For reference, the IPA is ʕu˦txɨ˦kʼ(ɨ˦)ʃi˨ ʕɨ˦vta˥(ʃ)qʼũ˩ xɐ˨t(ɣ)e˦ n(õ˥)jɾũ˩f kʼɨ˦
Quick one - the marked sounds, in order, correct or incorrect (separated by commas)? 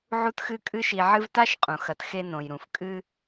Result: correct, correct, incorrect, incorrect